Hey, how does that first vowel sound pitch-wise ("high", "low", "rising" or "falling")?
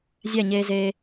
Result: falling